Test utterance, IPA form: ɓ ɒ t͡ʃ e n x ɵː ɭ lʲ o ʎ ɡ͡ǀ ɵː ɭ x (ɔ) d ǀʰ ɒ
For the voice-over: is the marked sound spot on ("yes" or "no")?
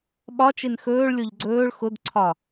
no